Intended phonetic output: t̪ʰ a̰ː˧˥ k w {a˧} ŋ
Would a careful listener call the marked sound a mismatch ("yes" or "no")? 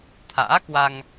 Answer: no